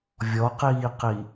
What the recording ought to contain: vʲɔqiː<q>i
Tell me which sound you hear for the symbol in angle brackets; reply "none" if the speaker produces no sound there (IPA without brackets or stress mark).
q